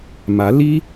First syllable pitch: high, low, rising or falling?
rising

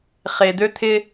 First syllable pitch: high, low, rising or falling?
low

